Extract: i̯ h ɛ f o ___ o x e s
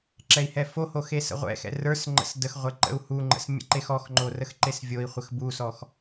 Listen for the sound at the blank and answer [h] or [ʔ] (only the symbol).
h